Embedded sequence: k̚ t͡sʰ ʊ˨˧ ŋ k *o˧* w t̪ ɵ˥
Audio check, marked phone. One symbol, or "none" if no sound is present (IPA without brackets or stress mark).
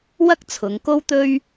o˥